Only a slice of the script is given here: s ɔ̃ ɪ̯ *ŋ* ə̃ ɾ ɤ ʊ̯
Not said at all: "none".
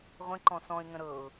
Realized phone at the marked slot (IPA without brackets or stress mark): ŋ